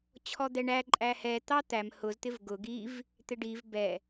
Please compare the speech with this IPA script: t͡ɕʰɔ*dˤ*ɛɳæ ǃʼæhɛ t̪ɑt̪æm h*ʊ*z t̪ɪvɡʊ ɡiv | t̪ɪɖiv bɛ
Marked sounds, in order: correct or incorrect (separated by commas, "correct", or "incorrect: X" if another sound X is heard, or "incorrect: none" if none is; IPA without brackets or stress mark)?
incorrect: d̪, correct